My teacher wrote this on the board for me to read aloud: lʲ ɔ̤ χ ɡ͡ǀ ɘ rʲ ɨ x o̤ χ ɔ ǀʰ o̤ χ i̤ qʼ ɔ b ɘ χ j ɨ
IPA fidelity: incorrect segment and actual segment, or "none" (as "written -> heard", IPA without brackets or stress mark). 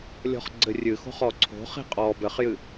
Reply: none